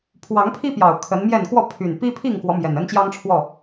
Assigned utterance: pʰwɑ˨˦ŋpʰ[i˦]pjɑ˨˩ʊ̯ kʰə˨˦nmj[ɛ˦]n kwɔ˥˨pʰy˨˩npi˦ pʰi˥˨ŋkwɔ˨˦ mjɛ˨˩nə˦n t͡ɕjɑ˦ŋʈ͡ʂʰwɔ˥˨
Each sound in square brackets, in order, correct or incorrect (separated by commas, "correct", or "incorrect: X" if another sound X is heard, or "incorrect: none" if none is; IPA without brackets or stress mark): correct, incorrect: ɛ˥˨